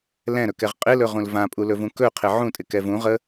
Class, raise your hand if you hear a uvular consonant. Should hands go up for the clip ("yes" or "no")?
yes